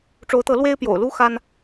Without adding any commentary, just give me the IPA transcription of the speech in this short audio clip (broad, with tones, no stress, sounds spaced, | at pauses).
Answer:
ʈ͡ʂ o˨˦ ʊ̯ t̪ ɤ˨˦ l w e˦ ɪ̯ p j o̰˨˩ ʊ̯ l u˦ x a˦ n